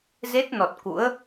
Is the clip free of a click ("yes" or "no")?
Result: yes